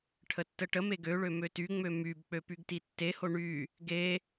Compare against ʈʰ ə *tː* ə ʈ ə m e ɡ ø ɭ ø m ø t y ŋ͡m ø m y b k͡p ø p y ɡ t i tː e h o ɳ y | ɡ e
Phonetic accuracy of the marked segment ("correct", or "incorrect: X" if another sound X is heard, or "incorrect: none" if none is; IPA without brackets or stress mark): correct